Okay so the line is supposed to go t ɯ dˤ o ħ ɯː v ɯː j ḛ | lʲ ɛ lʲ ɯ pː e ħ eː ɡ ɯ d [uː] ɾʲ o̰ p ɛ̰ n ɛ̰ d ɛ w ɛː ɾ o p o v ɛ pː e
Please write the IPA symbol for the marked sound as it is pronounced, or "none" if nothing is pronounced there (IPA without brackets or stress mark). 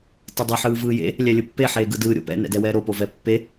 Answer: ɯː